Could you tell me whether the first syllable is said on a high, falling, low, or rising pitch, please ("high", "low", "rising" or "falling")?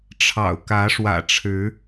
low